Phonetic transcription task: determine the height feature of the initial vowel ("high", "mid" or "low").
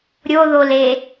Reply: mid